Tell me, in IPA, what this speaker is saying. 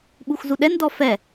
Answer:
ɓuxzuɗɛndɔ fɛ

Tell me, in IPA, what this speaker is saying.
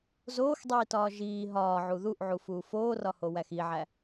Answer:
zoːxdˤiːtɒː ʒiː ɦɒːʕu ðuʔʕufuː foːrɒho wæxiʕæ

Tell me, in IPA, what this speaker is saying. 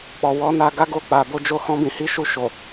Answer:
k͡pɔ˨wɔ˨˦ na˧ ɡa˦ɡo˦˨ k͡pa˨bo˧ d͡ʒo˧ hɔ̃˦bĩ˧hi˦ʃu˦˨ ʃo˨

